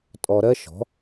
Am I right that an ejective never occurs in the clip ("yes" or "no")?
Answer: no